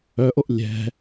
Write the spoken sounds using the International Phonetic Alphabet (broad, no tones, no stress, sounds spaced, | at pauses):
œ ʔ o ʔ lʲ ɛ̤